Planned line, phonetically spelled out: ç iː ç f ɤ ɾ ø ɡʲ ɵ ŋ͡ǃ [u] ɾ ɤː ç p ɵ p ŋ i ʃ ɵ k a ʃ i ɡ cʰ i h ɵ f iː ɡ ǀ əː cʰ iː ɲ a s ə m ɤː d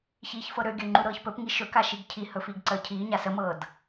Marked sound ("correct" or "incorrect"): correct